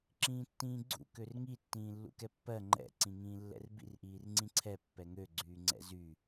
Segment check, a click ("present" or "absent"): present